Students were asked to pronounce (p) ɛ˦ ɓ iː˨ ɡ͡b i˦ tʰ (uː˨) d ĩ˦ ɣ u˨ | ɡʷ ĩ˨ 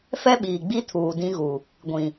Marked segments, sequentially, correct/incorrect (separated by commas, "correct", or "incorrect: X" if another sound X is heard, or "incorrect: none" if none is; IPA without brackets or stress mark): incorrect: f, correct